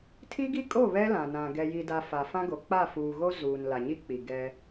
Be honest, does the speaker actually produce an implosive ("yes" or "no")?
no